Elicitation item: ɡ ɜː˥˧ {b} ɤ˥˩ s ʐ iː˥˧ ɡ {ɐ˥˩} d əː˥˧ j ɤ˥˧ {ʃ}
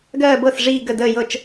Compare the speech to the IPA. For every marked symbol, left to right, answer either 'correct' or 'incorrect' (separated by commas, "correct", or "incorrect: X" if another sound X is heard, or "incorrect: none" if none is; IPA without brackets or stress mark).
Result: correct, incorrect: ə˥˩, incorrect: t͡ʃ